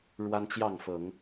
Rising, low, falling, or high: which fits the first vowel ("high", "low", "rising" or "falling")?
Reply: high